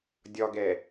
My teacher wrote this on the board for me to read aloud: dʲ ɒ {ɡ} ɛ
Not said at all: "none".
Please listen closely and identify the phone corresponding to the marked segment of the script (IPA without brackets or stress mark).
ɡ